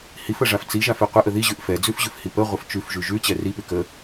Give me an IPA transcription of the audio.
h i f ə ʐ a f t͡s i ʒ a f e qʷ e ʔ ə ð i ʑ ʉ ʔ f ɛ d͡z ʉ f ʑ ʉ f h i p ə ʁʷ ə f t͡ʃ ʉ f ʒ ʉ ʒ ʉ t͡ɕ ɛ r i p ʉ k ə

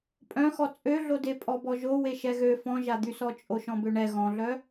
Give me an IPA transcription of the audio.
pʼ œ̃ x ɔ t͡sʼ ø ɮ o d e pʼ ɔ b ɔ ʒ o w e ʃ ɛ ɣ ø f ɔ̃ ʒ a d̪ y s ɔ t͡ʃʼ o ʃ ɔ̃ b ø ɳ ɛ ɣ ɔ̃ ɮ œ

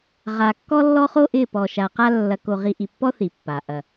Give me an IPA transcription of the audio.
ʁ a˨ kː ɔ˦ lː ɔ˦ χ o˦ ʔ ɪ˦˨ p ɔ˨ ʃ a˨ q a˦ lː ɐ˨ k o˨ ʁ i˨ ʔ i˨ pː ɔ˦ θ i˨ pː a˨ ʔ ɐ˨

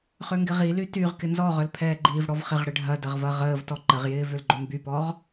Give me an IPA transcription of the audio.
χ ø ŋ ɡ ɪ ʁ i l y t y ʁ k ɪ n z ɔ ʁ œ l pʰ ɛː ɡ͡ǃ iː v ɽ ɔ v χ ɪ ʁ ɽ ɪ ɖʱ ɐ d ɐ ʁ v ɐ ʁ əː v t ɔ ǃ ə ʁ j ɪː v ʏ l ɡ͡ǃ ø m b y p ɔ ʁ

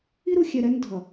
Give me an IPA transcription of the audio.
i˦ ɾ u˨ xʲ ɛ˨ ɾ ɛ˦ n dʱ ʌ˨

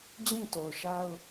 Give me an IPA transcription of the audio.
d͡ʑ ĩ˦˨ t o˨ ʊ̯ ʃ a˦ ʊ̯

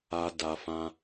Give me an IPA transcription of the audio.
a˧ d a˧ f ã˧

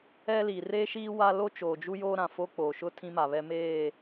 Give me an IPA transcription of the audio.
ɛ˦ l i˨ r e˦ ʃ iː˦ w a˦ l o˦ t͡ʃ oː˨ d͡ʒ u˦ j oː˦ ɾ ã˨ f o˦ k͡p oː˨ ʃ ʊ˦ tʰ ĩ˦ m a˨ β ɛ˦ m eː˦˨

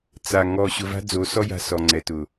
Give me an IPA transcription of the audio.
t͡s a˨ ŋ ɔ˨ ɕ ʊ˨ v a̤˦ d͡z o˨˦ s ɔ˦ j a̤˨ s ɔ˨ ŋ͡ǀ ɛ˨ t ʊ˨

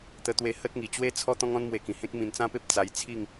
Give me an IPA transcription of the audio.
t̪ ə˧ t̪ w e˧ h ə˦ t̚ ŋ i˨˩ t͡ɕ w e˦ t͡sʰ ɔ˦ t̪ ɔ̃˦ ŋ ɔ̃˦ n m w e˧ k ĩ˨˩ h ẽ˦ k̚ m ĩ˧ n t͡s ã˦ p e˦ p̚ t͡s a˧ j t͡sʰ i˥˧ ŋ

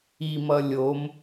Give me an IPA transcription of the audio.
i m ʌ lʲ o m

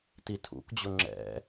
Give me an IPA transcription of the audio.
t i tʰ ṵ k d͡ʑ ʊ ŋ͡ǁ ɛ̰

